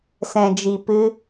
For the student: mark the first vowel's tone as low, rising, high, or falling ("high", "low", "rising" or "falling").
low